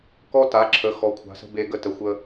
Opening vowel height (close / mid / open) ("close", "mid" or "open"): mid